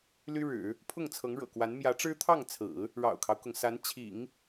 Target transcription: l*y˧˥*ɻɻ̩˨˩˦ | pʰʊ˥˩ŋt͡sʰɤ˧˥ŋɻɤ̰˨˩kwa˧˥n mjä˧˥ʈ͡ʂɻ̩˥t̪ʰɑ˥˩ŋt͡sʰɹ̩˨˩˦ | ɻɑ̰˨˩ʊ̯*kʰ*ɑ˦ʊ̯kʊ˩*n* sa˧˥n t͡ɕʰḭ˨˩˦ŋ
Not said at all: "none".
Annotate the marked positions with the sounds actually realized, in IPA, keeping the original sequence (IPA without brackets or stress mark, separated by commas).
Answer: y˥, kʰ, ŋ